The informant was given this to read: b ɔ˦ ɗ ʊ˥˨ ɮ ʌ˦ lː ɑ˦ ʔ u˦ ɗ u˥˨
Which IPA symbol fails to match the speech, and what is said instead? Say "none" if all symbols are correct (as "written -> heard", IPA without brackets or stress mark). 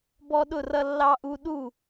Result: ɮ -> r